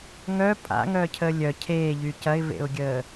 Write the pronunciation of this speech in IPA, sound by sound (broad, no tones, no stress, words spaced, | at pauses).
ŋœ pʼa̰ŋœcʰə lʲœ cʰeːʎy cɐɪ̯vḛʊ̯ɡʲəː